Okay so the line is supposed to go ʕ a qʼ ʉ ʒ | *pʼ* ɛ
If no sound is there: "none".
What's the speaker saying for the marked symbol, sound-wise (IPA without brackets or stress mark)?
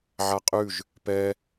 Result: p